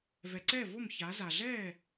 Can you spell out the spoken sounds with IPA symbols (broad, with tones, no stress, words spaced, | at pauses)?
vɛ˩ǀɛː˥˩vo˥˩m ça˩˧za˩ɮɛː˥˩